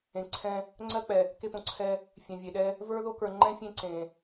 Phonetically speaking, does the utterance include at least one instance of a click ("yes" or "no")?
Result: yes